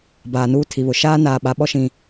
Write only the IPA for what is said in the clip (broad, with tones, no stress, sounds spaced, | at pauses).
b aː˨ n uː˦ tʰ i˨ β ʊ˨ ʃ aː˦ n aː˨ ɓ a˨˦ ɓ ɔ˦ ʃ ĩ˦